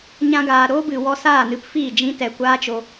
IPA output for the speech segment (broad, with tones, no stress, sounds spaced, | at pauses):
ɲ ã˧ ɡ aː˨ ɾ oː˦ b ɨ˨ w ɔ˧ s aː˦˨ n ɨ˧ p f iː˦˨ d͡ʒ ĩ˦ t ɛ˨ kʷ aː˦ t͡ʃ o˧